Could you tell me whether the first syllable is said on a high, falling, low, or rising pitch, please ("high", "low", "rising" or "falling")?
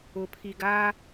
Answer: rising